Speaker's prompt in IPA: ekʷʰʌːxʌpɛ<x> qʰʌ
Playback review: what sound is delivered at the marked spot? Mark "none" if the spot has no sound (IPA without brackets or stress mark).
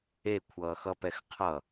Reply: x